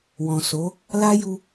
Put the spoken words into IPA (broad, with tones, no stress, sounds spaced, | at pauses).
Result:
w ɔ̃˨ s o˨˦ | l a˦ j u˧